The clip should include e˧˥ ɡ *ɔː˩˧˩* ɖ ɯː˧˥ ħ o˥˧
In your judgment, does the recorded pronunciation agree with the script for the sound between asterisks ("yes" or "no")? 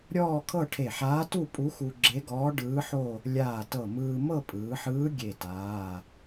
no